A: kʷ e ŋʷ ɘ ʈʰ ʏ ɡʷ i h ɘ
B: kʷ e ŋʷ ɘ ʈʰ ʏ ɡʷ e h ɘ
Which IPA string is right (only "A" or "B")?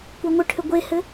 B